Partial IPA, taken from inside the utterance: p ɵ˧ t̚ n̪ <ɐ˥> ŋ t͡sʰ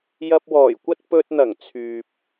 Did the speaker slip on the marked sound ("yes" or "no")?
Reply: yes